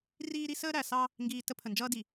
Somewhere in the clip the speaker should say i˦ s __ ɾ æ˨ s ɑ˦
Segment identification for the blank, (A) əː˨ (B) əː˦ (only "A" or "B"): B